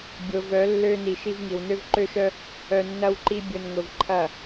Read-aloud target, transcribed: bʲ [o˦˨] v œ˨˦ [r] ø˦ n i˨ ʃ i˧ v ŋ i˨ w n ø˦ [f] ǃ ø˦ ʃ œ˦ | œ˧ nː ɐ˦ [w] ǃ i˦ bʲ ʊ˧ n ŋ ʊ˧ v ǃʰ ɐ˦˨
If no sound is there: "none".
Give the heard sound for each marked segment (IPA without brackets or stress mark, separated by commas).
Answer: o˨, lː, v, w